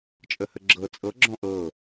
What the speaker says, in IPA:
t͡ʃʼəhəɡ͡ǁɤ t͡sʼɤ ɡ͡ǁɔ̃ʔɤ

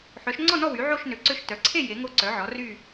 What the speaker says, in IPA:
ħœ˩˧ʃŋ͡ǀɔ˦˨nɔ˦˨ wy˩˧ʕo˦˨ʃ nø˩˧ǀø˦˨ʃ tœ˩˧ǀʰe˦˨ je˩˧ŋo˦˨ ǀœ˩˧ʕɔ˩˧ry˦˨

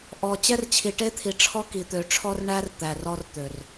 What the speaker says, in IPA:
ʔɔ˨ t͡ɕɛ˦rt͡ɕʰi˨ʈe˦t̪ʰi˨ ʈ͡ʂʰɔ˦ki˨ t̪ø˨ʈ͡ʂʰɔ˦r ɳæ˦r t̪æ˨rɔ˦r t̪ø˨r

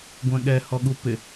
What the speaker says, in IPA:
ɡʷɛ̃ɠɛhɔ ɠupɪ

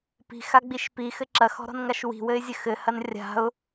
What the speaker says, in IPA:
pi̤xaɡ͡biʃ pixɘ ǁɐxɔ̤ɾɔ̤nŋaʃ wi̤wɘɪ̯zʲɘ xɘhɐn rʲa̤ʊ̯

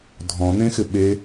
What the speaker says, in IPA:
dʱɔ̃n̪ẽxɪ ɓe

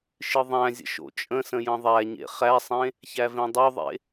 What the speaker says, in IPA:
ʃɨðˤæ̃zʲə̰ ʃo̰t͡ʃʼə̃sə̃ jə̃ðˤæɲḛ χæsˤẽ | çævẽdˤoðˤḛ

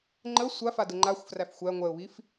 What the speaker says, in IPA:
ŋ͡ǃə sʷafa dɘŋ͡ǃaxʷfræf xʷæ ŋʷɛʊ̯βif

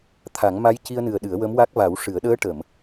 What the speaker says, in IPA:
t̪ʰa˨˩˦ŋma˧˥jci˧ə̯nɨ˨˩ə̯ ɗɨ˨˩˦ə̯wə˧˥mwa˦˥k̚ va˨˩˦wʂɨ˨˩˦ə̯ ɗəː˧˥ʈə˨˩˨m

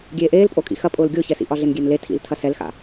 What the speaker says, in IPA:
ɡʲeːʔeːlpʼokʼḭ xɐpʼʊːl ɡʲʊːçɛsḭʔɒ ɮenɡʲenle tʰḭltʰɐ sɛlxa̰

